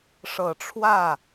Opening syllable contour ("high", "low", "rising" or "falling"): low